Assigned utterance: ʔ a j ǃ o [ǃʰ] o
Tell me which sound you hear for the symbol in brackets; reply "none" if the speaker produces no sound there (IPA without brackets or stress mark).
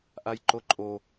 ǃʼ